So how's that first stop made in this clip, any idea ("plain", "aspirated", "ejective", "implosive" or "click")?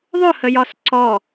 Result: click